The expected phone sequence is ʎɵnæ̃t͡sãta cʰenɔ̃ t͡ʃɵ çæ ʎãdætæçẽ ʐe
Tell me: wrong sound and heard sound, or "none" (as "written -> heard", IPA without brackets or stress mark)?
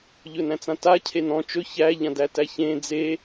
ʐ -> d͡z